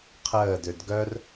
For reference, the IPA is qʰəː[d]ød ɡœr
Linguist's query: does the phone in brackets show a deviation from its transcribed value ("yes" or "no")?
no